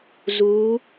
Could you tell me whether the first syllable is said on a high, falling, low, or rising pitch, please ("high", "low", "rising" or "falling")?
rising